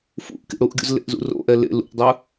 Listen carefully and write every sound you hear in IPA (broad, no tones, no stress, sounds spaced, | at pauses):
f ṵ ʔ k ḭ ɽ u ʔ ɡʲ ṵ z l ḛ ʔ z ṵ r o̰ ʔ ɛ l ḛ l ṵ ʔ dˤ ɯ